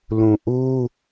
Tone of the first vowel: low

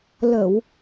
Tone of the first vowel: low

